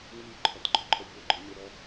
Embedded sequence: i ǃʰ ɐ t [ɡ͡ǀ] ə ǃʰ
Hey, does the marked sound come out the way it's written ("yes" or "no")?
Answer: no